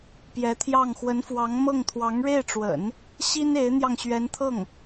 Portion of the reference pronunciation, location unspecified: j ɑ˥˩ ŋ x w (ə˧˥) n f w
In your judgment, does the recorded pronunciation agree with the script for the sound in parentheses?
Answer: yes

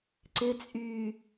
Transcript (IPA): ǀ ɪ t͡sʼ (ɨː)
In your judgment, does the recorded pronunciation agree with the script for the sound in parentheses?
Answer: no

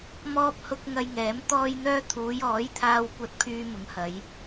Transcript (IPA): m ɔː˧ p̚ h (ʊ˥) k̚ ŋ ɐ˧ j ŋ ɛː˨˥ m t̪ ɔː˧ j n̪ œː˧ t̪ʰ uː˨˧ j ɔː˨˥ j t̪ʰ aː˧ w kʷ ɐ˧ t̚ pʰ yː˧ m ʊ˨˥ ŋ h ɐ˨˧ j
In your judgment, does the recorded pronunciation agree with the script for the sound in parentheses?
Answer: no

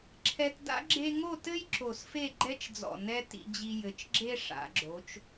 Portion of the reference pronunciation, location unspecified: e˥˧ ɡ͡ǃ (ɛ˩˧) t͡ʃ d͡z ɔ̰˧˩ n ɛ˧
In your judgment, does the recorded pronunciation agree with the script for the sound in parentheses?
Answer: no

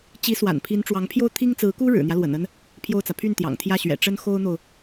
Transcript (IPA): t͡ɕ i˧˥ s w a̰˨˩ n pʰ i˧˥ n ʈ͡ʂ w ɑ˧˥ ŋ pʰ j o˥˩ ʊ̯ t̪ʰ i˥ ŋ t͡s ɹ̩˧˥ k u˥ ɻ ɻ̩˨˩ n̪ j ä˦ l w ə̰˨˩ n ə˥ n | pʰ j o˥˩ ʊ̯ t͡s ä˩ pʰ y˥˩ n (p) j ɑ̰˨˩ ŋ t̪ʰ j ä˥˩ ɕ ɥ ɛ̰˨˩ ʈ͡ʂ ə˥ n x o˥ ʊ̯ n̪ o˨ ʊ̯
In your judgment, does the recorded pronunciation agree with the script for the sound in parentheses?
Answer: no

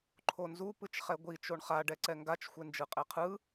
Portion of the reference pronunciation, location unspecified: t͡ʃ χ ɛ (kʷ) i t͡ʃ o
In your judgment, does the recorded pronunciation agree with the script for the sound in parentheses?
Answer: no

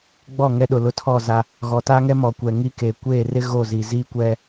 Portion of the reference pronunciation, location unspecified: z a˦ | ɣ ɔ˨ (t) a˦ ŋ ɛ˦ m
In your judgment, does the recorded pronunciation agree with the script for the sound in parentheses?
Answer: yes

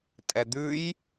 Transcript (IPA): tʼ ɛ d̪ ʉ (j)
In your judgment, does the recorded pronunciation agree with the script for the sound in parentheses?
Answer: yes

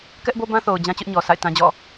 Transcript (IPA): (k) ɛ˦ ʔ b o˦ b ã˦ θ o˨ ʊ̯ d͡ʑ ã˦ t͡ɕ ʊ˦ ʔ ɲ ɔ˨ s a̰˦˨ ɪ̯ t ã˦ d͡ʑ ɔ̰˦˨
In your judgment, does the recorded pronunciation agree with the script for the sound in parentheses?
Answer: yes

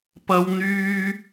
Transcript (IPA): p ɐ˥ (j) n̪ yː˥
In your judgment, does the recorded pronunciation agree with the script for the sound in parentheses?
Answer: no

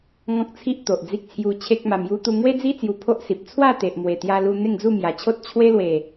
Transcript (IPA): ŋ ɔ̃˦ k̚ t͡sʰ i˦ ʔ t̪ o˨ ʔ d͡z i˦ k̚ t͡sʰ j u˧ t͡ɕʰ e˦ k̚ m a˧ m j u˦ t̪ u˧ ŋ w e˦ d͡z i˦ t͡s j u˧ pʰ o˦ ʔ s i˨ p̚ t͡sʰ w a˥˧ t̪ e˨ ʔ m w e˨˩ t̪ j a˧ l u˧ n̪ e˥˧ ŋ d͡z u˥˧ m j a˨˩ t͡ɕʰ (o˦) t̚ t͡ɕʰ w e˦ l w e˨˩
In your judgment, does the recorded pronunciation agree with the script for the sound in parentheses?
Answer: yes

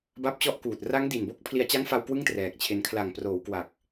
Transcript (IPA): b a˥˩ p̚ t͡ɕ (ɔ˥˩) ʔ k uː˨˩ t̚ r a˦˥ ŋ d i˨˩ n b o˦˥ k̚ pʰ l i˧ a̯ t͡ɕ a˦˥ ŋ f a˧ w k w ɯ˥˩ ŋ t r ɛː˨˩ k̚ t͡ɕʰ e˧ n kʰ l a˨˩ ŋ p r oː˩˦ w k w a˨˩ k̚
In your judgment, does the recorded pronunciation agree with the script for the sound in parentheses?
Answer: yes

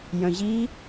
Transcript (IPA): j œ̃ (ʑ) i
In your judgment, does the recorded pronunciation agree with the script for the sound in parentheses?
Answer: yes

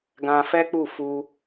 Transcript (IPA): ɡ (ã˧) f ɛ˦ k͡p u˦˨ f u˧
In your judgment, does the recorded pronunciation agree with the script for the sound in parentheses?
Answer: yes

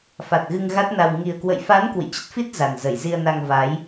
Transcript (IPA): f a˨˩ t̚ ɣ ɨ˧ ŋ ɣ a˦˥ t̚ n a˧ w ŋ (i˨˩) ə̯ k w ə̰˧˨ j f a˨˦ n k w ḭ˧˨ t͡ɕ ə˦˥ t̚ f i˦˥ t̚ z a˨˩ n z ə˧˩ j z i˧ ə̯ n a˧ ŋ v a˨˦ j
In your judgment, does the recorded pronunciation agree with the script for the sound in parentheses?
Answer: yes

